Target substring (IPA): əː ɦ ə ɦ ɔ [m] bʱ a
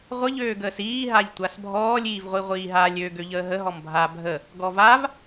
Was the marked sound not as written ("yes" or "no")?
no